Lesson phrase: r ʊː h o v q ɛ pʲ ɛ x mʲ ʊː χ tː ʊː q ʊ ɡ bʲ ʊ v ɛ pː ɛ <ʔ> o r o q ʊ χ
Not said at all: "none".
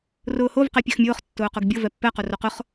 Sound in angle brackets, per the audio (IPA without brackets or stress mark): q